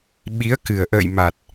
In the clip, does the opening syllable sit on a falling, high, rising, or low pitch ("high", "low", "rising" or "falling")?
rising